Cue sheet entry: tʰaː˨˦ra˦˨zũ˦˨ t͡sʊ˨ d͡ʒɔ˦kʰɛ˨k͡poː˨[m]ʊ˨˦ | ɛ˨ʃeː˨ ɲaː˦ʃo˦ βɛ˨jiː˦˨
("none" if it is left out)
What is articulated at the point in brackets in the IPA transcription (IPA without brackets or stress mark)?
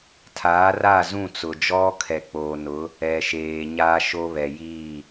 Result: n